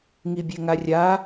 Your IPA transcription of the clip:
ŋ i bʲ e ŋ a rʲ a

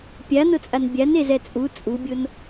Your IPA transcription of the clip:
pʲ a n ʊ t͡sʼ a n bʲ a n e z ɛ t͡sʼ u t͡sʼ u bʲ o n

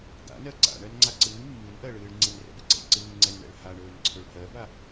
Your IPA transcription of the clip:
ɡ a̰ n ɜ ǀ a̰ ɳ ɜ n ŋ͡ǀ a ǀ ɨː mː ɨ n ʔ ɜ ɭ ɨː ɭ ŋ͡ǀ i n r ɛ̰ b ɨ ɡ͡ǀ ɛ̰ ɭ ǀ ɨː ŋ͡ǀ ɛ n ɳ ɛ̰ ɭ h a ɳ ɵː n ǀʰ ɵ ɭ h ɜ b a

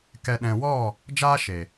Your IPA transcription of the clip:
k ɛ˨ ɗ ɛ̃˨ w ɔ˦˨ | d͡ʒ aː˦ ʃ e˨

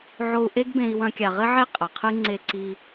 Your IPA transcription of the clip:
ʕ o˧ u̯ ʔ e˦ ɡ b ẽ˧ i̯ w ɐ̃˧ kʲ a˨ ʁ ɘ˦ ʕ e˦ qʼ ɐ˨ qʰ ɨ˦ ŋ͡ǀ e˧ ǀ i˧

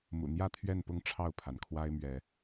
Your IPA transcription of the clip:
m ṵ˨˩ n̪ j ä˥˨ t̪ʰ ɥ ɛ˥˨ n p ʊ˥˨ ŋ ʈ͡ʂʰ ɑ˥˨ ʊ̯ pʰ a˩ n kʰ w a˦ ɪ̯ m ɥ ɛ˨˦

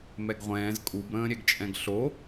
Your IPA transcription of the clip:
m ɛ ɡ ʁʷ ɛ̃ː z kʼ u b ɾ ə̃ː ɾʲ ɛ ɡ t͡ʃʼ ɛ̃ ɡ ɬ o

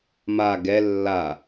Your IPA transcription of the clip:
m a ɡ ɛ lː a

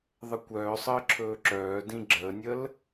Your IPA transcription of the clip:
ðˤ ə kʷ œː sˤ əː ǁʰ ɵː ǁ œː d ĩ ɡ͡ǁ əː nʲ ə l

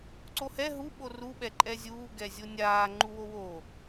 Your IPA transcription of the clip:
ǀ o h ɛ ɦ u ɓ o r u ɓ ɛ ǃʼ ɛ zʲ uː ɡ ɛ zʲ o nʲ aː ŋ͡ǃ u w o w o

